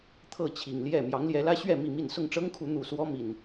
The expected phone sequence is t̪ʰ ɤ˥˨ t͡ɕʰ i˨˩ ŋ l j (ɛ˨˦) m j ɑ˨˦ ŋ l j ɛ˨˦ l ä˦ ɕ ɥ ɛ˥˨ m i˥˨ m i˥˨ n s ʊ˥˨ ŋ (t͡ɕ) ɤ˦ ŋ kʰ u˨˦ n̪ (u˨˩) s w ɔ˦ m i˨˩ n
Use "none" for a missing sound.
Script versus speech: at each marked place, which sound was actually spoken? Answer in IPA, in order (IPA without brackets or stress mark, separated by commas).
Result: ɛ˥˨, ʈ͡ʂ, u˨˩